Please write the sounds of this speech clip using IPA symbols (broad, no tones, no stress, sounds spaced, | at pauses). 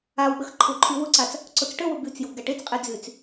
a w ɓ ə x ǃʰ ʊ ǃʰ y w ʊ ǀ a t͡s | ǀ ʊ t͡s ʈ ə w ʊ b y t͡s j ʊ b ɡ a ʈ e t͡s qʼ e d͡z y t͡s